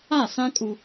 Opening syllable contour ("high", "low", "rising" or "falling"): falling